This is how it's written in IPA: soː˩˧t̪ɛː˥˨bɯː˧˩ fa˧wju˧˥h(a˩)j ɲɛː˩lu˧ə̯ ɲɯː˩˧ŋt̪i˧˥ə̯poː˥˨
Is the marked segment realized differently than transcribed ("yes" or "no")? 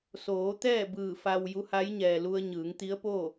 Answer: yes